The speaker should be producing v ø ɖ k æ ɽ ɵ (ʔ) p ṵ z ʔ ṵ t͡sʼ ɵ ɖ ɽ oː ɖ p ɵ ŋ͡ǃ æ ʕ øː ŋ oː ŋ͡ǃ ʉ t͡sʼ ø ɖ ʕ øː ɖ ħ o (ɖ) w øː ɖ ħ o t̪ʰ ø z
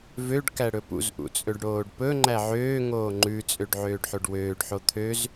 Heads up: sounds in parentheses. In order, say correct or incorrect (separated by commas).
incorrect, correct